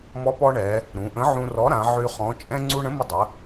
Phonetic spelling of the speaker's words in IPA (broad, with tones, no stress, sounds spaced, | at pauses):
m ɔ˨˥ p ɔ˧ ɳ ɛ˩˧ | ɾ ũ˩˧ ʔ ə̃˨˥ ʕ ũ˧ r ɔ˨˥ ɾ ã˩˧ ʕ y˧ χ ɔ̃˨˥ t͡ʃʼ ɛ̃˧ ŋ͡ǀ u˧ ɳ ə̃˨˥ m ə˧ dˤ ə˩˧